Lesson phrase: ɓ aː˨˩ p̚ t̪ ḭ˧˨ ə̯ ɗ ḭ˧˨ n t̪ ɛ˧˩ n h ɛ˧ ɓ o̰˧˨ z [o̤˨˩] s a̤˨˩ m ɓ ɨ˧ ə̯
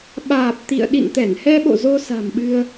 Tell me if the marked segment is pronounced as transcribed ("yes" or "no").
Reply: no